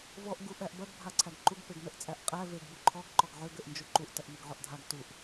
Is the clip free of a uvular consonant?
no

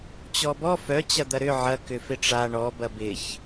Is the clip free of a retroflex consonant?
no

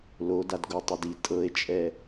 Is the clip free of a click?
yes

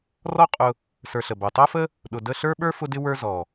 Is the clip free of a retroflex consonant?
yes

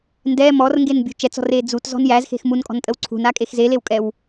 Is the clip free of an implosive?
yes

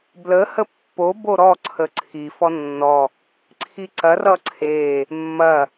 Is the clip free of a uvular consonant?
yes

